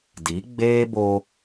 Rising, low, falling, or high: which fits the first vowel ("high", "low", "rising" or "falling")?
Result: rising